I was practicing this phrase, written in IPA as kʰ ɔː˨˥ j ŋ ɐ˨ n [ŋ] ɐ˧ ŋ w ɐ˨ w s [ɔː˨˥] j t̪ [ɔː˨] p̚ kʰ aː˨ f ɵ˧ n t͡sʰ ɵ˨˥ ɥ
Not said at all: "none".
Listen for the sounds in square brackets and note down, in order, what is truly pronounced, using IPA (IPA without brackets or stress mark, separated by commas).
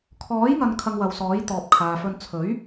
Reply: kʰ, ɔː˨˥, ɔː˨